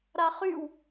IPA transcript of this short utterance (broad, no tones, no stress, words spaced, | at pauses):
ɾaχyw